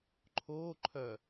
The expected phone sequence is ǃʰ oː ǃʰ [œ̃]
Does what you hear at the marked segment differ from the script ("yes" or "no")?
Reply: yes